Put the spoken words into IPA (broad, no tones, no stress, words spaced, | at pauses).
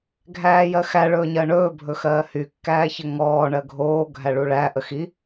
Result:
ɡʱæːjɜxæ ɭɵːɲɜɳɵː bʱɵxɜːhy kːæːçəŋɔː ɳɜɡʱoː ɡʱæɭuɭæ ʔəxi